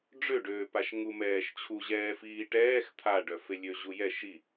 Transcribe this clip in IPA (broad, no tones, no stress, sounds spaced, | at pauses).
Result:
ɖ͡ʐ ø ɖ øː p a ʃ ŋ u m ɛː ʃ t͡ɕʰ u ʑ ɛː f iː ʈ ɛː x t̪ʰ a ɖ œ f e lʲ ø ʑ u j ɛ ʃ i